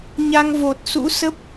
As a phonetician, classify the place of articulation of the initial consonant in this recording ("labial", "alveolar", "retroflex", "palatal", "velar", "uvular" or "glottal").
palatal